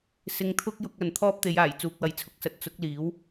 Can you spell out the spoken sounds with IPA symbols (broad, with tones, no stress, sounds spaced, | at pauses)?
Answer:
s ɪ˧ ŋ t̪ʰ ʊ˥ k̚ j ʊ˧ k̚ ɐ˨ n t̪ʰ ɔː˥ p̚ t̪ e˨˧ j aː˨˩ j t͡s uː˨ k̚ w ɐ˨˥ j t͡sʰ ʊ˨˥ k̚ s ɐ˨˥ t̚ t͡s ʊ˨˥ k̚ l iː˨˥ w